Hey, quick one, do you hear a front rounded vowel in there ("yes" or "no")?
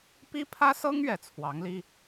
no